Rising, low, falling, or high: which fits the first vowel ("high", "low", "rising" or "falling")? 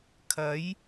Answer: rising